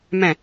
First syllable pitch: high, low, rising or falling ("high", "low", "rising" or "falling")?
low